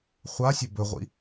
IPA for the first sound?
χʷ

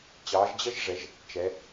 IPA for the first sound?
t͡ɕ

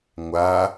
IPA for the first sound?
ŋʷ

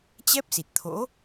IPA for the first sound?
t͡ɕ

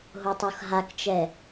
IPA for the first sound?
ɦ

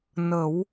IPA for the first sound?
n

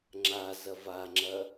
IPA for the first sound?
ŋ͡ǁ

